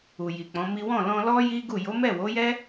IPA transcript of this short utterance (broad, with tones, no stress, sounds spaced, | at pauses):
u˨ j i˨ k͡p ɔ̃˨˦ m i˦ w ɔ̃˦˨ l ɔ̃˧ l ɔ˦ j i˦ ɡ u˦˨ j o˨˦ m ɛ˦˨ w o˨˦ j ɛ˦